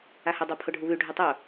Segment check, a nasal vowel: absent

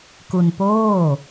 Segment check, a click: absent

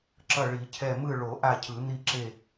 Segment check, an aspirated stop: present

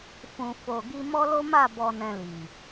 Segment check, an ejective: absent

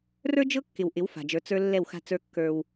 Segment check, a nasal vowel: absent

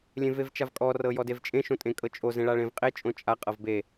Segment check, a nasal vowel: present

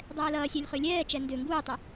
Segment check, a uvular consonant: present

